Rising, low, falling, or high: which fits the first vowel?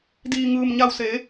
low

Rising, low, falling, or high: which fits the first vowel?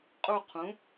falling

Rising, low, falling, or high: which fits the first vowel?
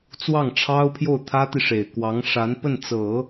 falling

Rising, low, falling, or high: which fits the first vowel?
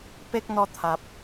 high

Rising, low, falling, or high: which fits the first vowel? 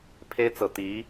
high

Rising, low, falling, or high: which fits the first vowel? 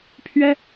high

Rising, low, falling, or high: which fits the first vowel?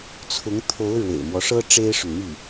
rising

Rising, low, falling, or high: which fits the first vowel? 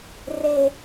high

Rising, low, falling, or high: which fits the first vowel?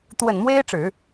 low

